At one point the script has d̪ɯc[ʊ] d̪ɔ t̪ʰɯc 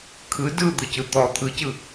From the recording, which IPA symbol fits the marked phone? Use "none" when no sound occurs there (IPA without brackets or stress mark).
ɯ